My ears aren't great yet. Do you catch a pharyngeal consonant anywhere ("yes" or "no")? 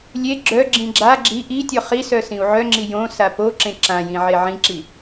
yes